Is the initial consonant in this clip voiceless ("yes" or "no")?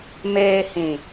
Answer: no